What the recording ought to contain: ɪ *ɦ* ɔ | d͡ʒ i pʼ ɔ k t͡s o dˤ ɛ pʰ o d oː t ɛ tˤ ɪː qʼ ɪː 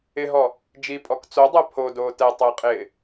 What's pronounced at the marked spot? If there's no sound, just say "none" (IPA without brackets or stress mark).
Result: ɦ